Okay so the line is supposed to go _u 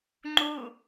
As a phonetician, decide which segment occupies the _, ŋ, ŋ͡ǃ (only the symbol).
ŋ͡ǃ